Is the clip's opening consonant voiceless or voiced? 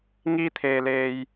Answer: voiced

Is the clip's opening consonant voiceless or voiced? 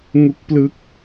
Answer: voiced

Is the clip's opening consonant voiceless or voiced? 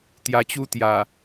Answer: voiceless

